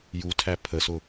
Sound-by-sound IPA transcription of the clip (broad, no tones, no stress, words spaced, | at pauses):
jutʰæ pʰəsʊ